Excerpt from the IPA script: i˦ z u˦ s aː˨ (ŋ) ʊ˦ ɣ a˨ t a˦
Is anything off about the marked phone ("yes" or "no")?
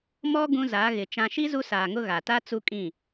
no